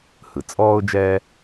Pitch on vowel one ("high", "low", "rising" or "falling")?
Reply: low